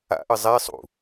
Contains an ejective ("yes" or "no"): no